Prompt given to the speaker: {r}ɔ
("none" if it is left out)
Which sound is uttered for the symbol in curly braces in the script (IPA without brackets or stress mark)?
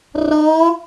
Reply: r